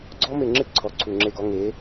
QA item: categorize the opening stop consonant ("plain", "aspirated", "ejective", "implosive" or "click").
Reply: click